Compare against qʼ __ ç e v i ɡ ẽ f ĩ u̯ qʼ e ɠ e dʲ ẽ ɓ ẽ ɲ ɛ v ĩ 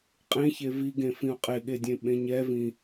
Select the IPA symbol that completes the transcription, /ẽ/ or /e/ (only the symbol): ẽ